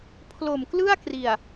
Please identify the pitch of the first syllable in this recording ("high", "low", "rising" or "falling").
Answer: low